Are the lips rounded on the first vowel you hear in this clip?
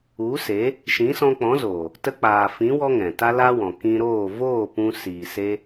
yes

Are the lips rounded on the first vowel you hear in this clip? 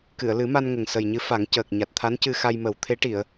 no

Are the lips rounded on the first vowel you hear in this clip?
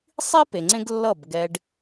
no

